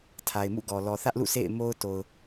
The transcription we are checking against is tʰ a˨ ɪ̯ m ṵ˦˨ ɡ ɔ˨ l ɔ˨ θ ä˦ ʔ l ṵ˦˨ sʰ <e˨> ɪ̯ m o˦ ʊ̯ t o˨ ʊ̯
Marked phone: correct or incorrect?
incorrect